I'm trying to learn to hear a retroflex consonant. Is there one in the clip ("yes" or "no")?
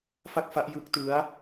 no